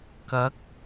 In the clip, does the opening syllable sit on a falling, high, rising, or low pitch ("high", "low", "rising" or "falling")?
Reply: rising